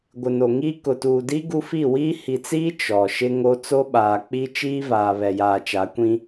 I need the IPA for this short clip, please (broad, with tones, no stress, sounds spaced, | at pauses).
ɡʷ ɪ˨ n o˨ ŋ iː˦ k ʊ˨ t uː˨ d i˦ ɡ u˦ f i˦˨ w iː˦ h i˨ t͡s iː˦ t͡ʃ ɔ˨ ʃ ɪ˦ ŋ o˦ t͡s o˦ ɓ aː˨ k͡p i˦ t͡ʃ iː˦ v aː˨ β ɛ˨ j aː˨ t͡ʃ a˨˦ kʷ ĩ˦